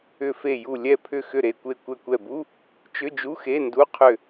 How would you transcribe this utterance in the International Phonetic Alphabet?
ʏ˧˩fe˧˩ ju˧˩ lʲɛ˧˩pʰʏ˧˩ xʏ˧˩ɾe˧˩kʷe˧˩ kʷɛ˧˩kʷɛ˧˩bu˧˥˧ | t͡ʃʏ˧˥˧d͡ʒu˧˥˧xe˧˥˧ndu˧˥˧ qʰʏ˧˩

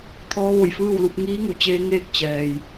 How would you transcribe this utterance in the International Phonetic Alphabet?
t̪ʰɔː˧˥ʋo˧˩jfɯː˥˨wlu˧p̚ ŋiː˧˥ŋu˩t͡ɕeː˧ ŋeː˥˨k̚ t͡ɕɛː˩j

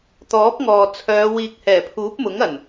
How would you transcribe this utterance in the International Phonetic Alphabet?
t̪ɔː˨˥p̚ŋɔː˨ t͡sʰœː˨˧ wiː˨k̚hɛː˨˩ pʰuː˨˥p̚mʊ˨˥ŋ ɐ˨˩n

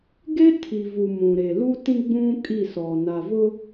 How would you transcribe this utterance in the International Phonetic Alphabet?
ɡe˦tʰi˨vu˨ mũ˨ɾe˨ lu˦tĩ˦ɡ͡bũ˦ kʼi˦˨sɔ˨na˨vʊ˦

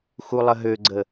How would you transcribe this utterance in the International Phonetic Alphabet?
xulˠəɦøɡ͡ǀə

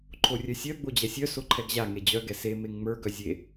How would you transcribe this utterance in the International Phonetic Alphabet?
ǃʰorʲœsʲœ ɡ͡bod͡ʑɛsʲœ soǃʰɛɡʑa ŋed͡ʑœ ɡɛse meŋŋ͡mə˞ ɡœzʲe

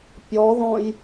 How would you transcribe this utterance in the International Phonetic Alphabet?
pʲɔðɔ̃j

